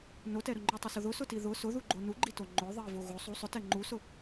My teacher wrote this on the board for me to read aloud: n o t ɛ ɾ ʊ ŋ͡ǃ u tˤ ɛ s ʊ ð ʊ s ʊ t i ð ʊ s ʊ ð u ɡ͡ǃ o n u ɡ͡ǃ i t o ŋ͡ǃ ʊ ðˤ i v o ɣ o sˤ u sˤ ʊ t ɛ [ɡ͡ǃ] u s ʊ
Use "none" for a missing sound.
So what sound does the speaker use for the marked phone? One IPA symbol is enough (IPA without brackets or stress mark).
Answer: ŋ͡ǃ